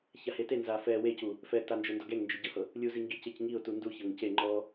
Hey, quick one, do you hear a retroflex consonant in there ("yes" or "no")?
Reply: no